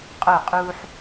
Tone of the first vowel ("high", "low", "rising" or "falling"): falling